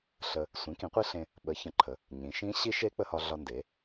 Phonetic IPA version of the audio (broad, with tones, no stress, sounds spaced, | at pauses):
ɬ ə˧ | sʷ ĩ˩˥ k ĩ˩˥ qʷ i˦˥ ɬ ẽ˧ | ɓ ə˩˥ ç ə̃˩˥ ǃʰ ə˩˧ | ɲ ĩ˩˧ ʃ ĩ˦˥ ɕ i˦˥ ʃ e˦˥ k͡p ə˧ h ɒ˧ ɮ ɒ˧ n d e˩˧